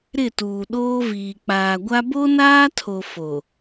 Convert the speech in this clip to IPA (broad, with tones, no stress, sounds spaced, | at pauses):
ɾ ɪ˦˨ t uː˨ ɗ oː˦ v iː˨ k͡p aː˨ ɡʷ a˦ b o˦ n aː˦ tʰ o˨ f o˨